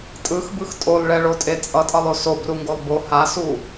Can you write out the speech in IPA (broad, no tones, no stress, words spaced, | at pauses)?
tʼɯxbɯx tʼolɭɛɭotʼe t͡sʼʌtʼʌlˠo sobruŋɡolˠ bo hasu